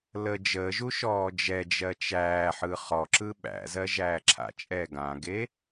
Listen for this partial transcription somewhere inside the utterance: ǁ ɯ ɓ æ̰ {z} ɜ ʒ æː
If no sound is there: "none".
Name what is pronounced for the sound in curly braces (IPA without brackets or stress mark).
z